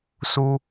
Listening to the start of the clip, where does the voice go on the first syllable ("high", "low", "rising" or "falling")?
high